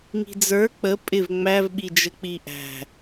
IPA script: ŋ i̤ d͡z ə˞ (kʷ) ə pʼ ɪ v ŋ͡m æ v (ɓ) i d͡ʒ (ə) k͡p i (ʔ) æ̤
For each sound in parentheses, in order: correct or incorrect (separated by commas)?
incorrect, correct, correct, correct